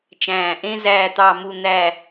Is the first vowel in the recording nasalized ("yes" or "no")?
yes